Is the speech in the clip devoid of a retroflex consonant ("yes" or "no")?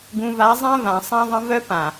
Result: yes